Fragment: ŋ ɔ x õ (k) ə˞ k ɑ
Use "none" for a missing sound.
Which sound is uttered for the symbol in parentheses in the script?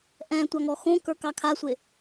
k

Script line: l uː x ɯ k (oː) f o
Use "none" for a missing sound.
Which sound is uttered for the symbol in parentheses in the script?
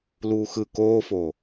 oː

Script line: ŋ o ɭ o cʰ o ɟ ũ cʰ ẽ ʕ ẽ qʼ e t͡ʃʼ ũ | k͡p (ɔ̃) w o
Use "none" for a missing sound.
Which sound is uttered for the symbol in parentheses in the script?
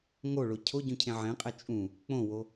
õ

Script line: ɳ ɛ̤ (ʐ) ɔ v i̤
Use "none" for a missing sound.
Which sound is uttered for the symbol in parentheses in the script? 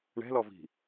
l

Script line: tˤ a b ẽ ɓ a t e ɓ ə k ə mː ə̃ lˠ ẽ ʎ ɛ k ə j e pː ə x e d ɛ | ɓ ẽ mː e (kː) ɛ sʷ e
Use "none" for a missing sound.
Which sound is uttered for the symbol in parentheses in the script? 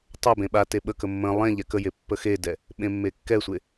kː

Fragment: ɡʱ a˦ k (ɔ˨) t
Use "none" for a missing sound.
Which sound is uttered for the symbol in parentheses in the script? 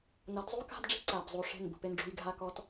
ɔ˨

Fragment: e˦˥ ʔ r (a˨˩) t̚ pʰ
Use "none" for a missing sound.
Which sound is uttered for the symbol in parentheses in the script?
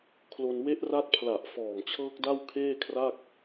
a˦˥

